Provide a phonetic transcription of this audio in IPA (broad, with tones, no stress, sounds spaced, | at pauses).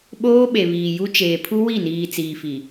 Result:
ɓ oː˦ ɓ e˨ β iː˨ j u˦ t͡ʃ eː˨ pʰ u˦ w i˦˨ n iː˨ t͡s iː˨ f i˨